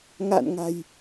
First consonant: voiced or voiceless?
voiced